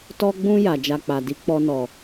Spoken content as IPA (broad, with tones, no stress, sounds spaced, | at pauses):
t ɔ˧ ɡ͡b ũ˧ j a˨ d͡ʒ a˧ k͡p a˨ d i˧ k͡p ɔ˧ n ɔ˨